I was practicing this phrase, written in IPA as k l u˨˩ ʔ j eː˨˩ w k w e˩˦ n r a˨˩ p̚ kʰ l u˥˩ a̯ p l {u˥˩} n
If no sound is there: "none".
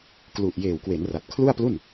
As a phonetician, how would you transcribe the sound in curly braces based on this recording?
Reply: u˥˩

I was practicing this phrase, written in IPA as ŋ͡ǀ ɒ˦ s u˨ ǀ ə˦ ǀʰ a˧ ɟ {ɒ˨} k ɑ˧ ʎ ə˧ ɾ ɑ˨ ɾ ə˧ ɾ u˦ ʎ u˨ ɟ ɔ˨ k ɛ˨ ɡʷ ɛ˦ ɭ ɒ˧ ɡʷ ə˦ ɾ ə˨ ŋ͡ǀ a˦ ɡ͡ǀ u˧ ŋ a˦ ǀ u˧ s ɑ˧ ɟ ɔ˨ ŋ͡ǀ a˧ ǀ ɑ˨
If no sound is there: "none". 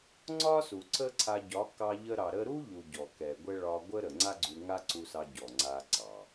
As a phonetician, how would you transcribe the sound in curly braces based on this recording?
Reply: ɒ˨˦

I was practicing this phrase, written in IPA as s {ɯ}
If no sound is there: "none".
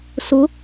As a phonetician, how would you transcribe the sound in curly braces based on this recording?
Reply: ʊ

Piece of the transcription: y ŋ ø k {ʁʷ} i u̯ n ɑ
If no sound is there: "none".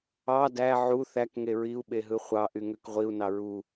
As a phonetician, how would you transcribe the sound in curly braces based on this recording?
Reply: ʁʷ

